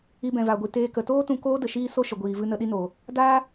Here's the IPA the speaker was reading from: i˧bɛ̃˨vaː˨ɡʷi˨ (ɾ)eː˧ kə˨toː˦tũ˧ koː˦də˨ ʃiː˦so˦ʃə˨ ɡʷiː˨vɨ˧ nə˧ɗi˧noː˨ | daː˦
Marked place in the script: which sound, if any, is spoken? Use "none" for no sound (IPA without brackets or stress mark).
t